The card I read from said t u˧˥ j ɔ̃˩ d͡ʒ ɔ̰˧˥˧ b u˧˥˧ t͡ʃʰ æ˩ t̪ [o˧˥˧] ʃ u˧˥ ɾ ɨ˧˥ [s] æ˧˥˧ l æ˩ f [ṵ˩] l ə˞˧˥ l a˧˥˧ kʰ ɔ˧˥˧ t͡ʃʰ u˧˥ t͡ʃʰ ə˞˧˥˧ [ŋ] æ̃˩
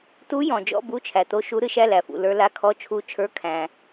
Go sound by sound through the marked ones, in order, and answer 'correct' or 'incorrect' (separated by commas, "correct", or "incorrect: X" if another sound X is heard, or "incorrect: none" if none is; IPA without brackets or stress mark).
incorrect: o˧˥, incorrect: ʃ, correct, incorrect: kʰ